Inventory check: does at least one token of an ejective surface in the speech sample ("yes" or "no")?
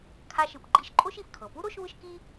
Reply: yes